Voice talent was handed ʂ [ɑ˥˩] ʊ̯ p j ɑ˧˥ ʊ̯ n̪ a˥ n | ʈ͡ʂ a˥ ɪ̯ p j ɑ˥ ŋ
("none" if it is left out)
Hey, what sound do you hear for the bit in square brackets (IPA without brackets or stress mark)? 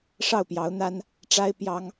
ɑ˥˩